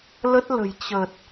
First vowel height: mid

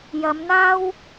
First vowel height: low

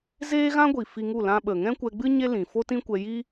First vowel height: mid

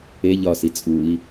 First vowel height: mid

